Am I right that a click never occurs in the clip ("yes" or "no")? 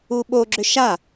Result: no